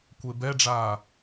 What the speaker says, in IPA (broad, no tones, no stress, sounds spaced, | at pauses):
kʷ e b ɛ ɖ͡ʐ aː